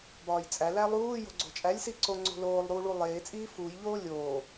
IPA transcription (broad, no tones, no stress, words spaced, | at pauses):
bɒːjt͡sʼæ lælˠuː jo̤ɡ͡ǀo̤t͡ʃʼælʲ siǀoŋ͡ǀo̤loːlˠ ɾuːɭulˠeː t͡sʼiːfuːj ʎoːlʲoː